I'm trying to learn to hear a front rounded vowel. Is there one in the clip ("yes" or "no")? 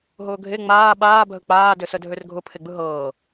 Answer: yes